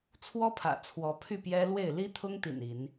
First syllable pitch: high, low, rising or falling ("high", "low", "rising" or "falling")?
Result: high